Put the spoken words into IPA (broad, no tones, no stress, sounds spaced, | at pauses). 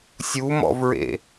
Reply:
sʲ u m ɔ̰ v ɹ ḛ